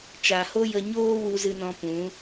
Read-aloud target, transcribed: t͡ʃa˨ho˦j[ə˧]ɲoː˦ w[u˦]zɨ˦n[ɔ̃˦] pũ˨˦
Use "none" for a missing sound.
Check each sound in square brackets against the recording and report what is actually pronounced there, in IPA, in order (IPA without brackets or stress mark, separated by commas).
ə˧, u˦, ɔ̃˦